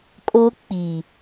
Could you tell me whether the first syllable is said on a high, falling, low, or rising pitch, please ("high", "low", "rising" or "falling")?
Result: high